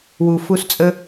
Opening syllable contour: low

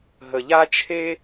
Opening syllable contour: low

